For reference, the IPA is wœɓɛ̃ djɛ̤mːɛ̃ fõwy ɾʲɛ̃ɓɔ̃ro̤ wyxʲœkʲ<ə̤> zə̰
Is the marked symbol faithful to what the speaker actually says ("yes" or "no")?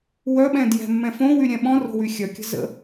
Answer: yes